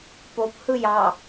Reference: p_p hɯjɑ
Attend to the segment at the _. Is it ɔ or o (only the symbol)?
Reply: o